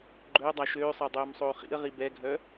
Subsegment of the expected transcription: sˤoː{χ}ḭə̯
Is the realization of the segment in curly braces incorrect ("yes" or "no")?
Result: no